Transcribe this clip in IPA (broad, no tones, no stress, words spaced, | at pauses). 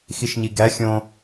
xiʃɲiɡæ xʲõ